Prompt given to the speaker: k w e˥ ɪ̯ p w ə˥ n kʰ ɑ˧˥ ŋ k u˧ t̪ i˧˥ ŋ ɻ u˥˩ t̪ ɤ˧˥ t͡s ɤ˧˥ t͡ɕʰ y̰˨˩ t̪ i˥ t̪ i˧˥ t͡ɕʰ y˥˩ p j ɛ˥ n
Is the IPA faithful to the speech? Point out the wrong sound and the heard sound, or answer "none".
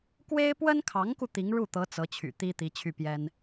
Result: none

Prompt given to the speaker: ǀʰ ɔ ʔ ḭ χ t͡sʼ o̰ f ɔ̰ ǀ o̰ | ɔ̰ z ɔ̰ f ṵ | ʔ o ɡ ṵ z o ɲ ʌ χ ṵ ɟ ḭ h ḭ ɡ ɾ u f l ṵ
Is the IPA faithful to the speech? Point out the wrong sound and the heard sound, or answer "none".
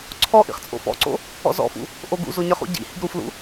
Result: none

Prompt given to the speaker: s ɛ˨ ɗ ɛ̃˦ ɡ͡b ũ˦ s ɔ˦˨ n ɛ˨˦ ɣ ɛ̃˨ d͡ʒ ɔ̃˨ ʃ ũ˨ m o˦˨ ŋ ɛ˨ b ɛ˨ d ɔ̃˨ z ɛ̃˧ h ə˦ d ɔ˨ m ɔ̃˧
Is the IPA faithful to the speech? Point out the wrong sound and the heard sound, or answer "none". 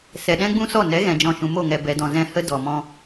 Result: none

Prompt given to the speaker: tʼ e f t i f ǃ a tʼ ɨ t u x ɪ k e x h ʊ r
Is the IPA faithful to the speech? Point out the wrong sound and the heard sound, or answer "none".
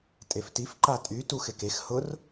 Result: ɨ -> y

